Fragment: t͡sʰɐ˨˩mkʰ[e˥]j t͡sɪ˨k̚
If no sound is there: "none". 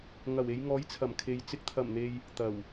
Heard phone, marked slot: e˨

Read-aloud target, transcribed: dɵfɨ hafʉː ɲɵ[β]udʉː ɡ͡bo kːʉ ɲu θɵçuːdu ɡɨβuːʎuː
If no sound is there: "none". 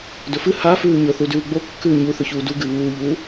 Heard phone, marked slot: θ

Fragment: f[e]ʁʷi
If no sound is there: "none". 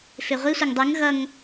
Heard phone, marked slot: e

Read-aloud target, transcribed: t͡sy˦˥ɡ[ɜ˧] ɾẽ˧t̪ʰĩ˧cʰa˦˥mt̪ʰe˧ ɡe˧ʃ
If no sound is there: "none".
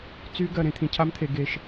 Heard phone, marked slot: ɜ˧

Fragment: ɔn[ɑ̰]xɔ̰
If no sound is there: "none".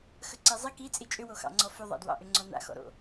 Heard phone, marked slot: a̰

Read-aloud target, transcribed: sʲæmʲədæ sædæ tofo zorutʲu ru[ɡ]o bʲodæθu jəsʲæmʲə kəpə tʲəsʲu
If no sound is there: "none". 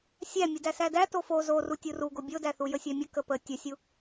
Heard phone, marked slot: ɡ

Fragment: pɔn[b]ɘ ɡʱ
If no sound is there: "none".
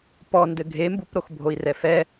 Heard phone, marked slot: d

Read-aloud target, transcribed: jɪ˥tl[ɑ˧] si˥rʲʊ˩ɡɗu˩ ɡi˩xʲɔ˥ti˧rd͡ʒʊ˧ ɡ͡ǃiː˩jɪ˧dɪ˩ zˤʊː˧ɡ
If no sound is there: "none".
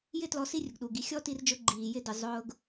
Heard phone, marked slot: ɔ˧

